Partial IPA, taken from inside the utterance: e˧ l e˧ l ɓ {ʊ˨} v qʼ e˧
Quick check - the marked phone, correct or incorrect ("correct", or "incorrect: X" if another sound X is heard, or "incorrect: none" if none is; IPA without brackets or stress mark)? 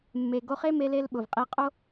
correct